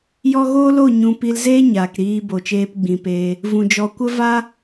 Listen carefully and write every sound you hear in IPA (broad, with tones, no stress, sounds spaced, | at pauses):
j ɔ˦ ɣ oː˦ l o˦˨ ɲ ũ˧ p i˧ l z eː˦ ɲ aː˨ k ɾ iː˧ b o˨ t͡ʃ eː˧ p ɡ͡b ĩ˨ p eː˧ | v ũ˨ d͡ʒ ɔ˧ kʷ ə˦ v a˦